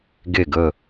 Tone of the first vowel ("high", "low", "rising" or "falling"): falling